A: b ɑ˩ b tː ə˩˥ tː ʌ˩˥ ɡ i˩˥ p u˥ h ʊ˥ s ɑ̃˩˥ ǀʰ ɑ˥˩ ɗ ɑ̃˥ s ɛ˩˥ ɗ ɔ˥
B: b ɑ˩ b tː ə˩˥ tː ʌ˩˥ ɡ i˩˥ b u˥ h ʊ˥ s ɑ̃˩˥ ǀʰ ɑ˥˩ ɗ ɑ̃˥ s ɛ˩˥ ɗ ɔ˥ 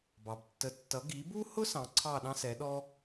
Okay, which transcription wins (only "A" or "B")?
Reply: B